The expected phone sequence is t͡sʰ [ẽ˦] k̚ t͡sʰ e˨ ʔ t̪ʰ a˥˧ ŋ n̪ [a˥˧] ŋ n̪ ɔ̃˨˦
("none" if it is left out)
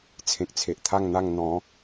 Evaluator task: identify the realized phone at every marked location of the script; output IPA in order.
ẽ˨, a˥˧

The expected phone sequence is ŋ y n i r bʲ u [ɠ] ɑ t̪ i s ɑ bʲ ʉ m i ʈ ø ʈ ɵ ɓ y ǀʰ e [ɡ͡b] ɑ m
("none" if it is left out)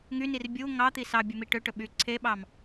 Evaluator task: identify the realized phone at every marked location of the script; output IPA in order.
ŋ, ɓ

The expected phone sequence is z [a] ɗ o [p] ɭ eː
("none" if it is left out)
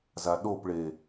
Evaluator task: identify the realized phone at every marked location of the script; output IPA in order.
a, p

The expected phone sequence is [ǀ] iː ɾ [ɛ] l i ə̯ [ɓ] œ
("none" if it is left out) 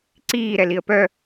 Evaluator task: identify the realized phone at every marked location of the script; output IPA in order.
ǀ, ɛ, p

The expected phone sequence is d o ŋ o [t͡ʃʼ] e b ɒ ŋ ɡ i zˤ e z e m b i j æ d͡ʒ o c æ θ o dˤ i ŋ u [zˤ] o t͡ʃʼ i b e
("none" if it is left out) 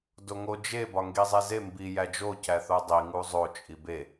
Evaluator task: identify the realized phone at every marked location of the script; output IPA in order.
d͡ʒ, zˤ

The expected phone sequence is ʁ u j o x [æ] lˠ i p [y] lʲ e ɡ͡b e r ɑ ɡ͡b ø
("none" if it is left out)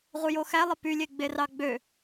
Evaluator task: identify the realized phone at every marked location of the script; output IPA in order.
æ, y

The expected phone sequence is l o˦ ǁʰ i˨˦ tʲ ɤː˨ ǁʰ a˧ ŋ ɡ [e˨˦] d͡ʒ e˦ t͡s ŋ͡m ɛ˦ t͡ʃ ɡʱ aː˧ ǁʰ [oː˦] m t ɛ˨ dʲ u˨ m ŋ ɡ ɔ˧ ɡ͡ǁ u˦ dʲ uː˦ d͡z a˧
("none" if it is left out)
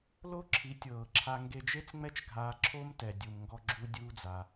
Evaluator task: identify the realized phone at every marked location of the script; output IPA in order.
e˧, o˦

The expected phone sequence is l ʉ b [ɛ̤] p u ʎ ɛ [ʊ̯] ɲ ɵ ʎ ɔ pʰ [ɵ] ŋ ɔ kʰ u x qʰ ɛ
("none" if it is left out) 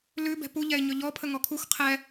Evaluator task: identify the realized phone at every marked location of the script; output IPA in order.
ɛ̤, ɪ̯, ə

